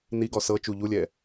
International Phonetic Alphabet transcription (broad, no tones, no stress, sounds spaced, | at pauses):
n i ɡ ɔ s ɤ t͡ʃ u ʎ u lʲ ɛː